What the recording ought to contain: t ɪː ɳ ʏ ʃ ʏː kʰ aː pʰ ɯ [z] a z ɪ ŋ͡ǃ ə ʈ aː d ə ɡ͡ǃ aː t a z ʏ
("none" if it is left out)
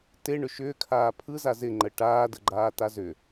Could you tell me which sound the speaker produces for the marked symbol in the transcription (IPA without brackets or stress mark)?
z